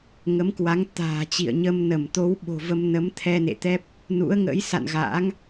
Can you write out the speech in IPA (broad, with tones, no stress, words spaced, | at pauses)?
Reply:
ŋə˨˦mkwa˨˦ŋt̪a̤ː˨˩t͡ɕḭ˧˨ə̯ ɲə˧mnə˧˩m t̪o˨˦wɓo̤˨˩və˧mnə˨˦m t̪ʰɛ˧nḛ˧˨t̪ɛ˦˥p̚ | nṵ˧˥ə̯ŋə̰˧˥j sa̰˧˨n ɣa̰ː˧˥ŋ